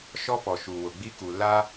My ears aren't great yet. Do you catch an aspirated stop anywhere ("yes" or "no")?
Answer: no